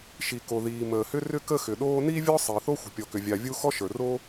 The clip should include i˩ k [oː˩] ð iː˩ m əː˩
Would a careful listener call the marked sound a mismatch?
yes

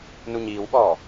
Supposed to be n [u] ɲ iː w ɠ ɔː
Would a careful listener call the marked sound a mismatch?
no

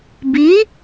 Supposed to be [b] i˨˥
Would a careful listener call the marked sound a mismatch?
no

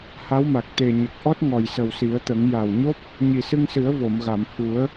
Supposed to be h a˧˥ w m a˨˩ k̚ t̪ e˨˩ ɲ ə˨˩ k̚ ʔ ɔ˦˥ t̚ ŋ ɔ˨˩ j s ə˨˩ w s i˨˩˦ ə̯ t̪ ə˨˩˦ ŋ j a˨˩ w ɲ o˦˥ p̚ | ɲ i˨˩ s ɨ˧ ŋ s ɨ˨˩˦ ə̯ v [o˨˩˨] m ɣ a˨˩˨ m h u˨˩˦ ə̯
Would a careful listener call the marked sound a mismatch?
no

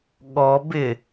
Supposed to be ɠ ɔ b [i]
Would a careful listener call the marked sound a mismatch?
yes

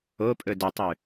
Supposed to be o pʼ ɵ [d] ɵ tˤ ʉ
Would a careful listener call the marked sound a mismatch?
no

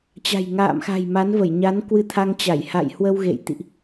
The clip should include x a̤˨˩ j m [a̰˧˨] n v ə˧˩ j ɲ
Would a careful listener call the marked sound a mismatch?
yes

